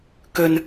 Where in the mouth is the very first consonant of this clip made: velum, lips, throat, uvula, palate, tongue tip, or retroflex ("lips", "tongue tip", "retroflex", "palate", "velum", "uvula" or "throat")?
velum